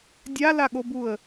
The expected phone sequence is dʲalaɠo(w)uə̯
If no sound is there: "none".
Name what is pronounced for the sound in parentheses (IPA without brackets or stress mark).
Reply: b